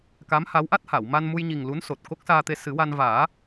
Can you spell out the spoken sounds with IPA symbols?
ka˧˥mha˧˥wʔa˦˥t̚ha˨˩˨w ma˧nmu˧jɲi˨˩ŋ lu˧˥nso˨˩t̚ ko˦˥k̚saː˧t̪e˧ sɨ˨˩˦wa˧n vaː˨˩˦

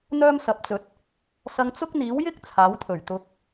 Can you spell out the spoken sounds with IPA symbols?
n̪œː˥msɐ˨˥p̚t͡sɵ˨˥t̚ | sɐ˧ŋt͡sʊ˥k̚n̪iː˨˥wjɪ˥k̚ t͡sʰaː˨˥wt̪ʰɵ˨˩ɥt̪ʊ˧k̚

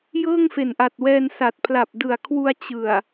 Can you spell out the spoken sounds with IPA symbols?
jɤː˥˩ŋfe˨˩nʔa˨˩t̚wɛː˧n sa˨˩t̚pʰla˨˩p̚dɯ˨˩a̯ kʰwu˧a̯t͡ɕɯ˨˩a̯

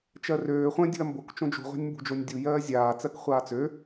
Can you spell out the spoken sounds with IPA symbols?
t͡ʃɜrøː χʷə̃ dʲṳɐ̯mbok t͡ʃõd͡ʒṳ ʁʷa̤nʲmbṳd͡ʒonʲdʲu jɜːzʲaː t͡sɜkχʷaːt͡sø

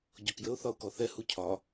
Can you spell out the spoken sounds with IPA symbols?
ɟɔkjəʊ̯ θɒʊ̯kɔθɛ hucʰɒ

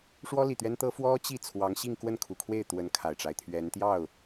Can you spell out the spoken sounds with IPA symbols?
ʂwɔ˥li˨˩t̪ɥɛ˥nt̪ɤ˥ fwɔ˥t͡ɕi˥˩ t͡sʰwɑ˧˥ŋɕi˥˧ŋ kwə˥˩nkʰu˨˩kʰwe˥˩ɪ̯ t̪wə˧˥n kʰa˨˩ɪ̯ʈ͡ʂa˦ɪ̯t̪ʰɥɛ˧˥n t̪jɑ˥˩ʊ̯

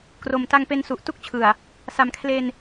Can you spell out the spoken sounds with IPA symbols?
kro˨˩mta˧ŋ pe˧nsu˨˩ʔtu˥˩k̚t͡ɕʰɯ˨˩a̯ | sa˨˩mkʰle˧n

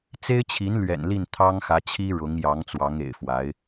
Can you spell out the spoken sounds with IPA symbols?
t͡se˥ɪ̯t͡ɕʰi˧˥n lɥɛ̰˨˩nli˥˩n t̪ʰɑ˥ŋxä˧˥t͡ɕʰi˥ ɻʊ˧˥ŋ jɑ˧˥ŋt͡swɑ˧˥ŋḛ˨˩ɪ̯fwa˧˥ɪ̯

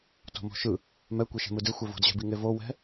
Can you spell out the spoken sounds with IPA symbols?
to̤mo̤ʃɯ | mɛ kʷeʃɛ̤mɯde xʷɛvo̤dʑɛ̤bi ŋevo wɛ̤

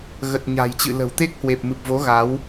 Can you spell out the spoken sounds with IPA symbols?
ɣə˨˩t̚ɲa̤˨˩jt͡ɕɨ̰˧˨lə̤˨˩w t̪e˦˥k̚hwe˨˩p̚mɨ˨˩p̚vo˨˦ ɣa˨˦w

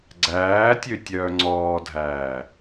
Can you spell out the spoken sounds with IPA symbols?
ɡ͡ǀæːtʲø tʲœːŋ͡ǀɔːdʱæː

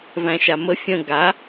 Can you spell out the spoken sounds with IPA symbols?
væ̃ʃamə fʲə̃ ɡa

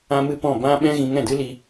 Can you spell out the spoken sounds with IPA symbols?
ã˦mɨ˦pɔ̃˦˨ bã˦ɓɛ̃˦ ɣĩ˧ŋɛ̃˦˨dɨ˦li˧

